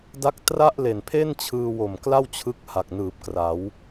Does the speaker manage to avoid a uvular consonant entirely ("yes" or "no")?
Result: yes